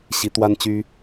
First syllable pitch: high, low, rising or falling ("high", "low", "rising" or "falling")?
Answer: rising